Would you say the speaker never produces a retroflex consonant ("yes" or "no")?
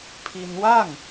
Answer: yes